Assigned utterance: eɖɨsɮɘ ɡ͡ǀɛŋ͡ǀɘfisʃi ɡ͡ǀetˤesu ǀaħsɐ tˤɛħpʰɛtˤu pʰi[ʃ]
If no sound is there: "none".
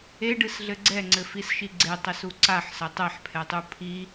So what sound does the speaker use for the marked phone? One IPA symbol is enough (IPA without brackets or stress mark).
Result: none